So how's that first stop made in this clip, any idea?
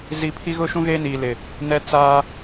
aspirated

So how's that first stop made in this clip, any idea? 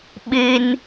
implosive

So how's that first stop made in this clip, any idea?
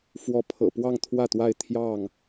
aspirated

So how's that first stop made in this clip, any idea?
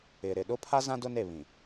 implosive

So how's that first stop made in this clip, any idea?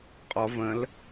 ejective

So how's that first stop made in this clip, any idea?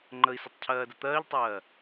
click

